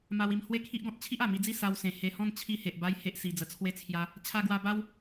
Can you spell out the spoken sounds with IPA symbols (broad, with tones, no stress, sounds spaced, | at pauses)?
m a˧ w i˧ m h w e˦ kʰ i˦ ʔ ɡ ɔ̃˦ t̚ t͡ɕʰ i˦ ʔ a˨˩ m i˧ d͡z i˥˧ s a˧ w s ẽ˨˩ h e˧ h ɔ̃˥˧ n t͡ɕʰ i˧ h e˨ ʔ b a˧ j h e˦ ʔ s i˧ d͡z ə˧ t͡sʰ w e˥˧ t͡sʰ j a˦ | t͡ɕʰ a˧ ɡ w a˧ b a˦ w